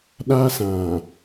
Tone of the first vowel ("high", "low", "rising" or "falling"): high